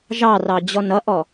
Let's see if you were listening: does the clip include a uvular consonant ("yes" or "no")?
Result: no